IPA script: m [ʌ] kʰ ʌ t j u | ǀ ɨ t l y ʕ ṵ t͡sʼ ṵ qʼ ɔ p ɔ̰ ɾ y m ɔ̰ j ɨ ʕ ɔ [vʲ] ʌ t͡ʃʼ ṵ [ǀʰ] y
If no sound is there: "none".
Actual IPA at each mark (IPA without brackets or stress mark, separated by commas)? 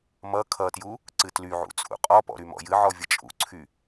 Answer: ʌ, vʲ, ǀʰ